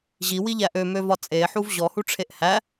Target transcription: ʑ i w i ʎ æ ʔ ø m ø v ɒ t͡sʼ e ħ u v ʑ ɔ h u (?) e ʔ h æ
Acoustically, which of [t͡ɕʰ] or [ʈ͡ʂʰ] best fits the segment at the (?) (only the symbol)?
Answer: ʈ͡ʂʰ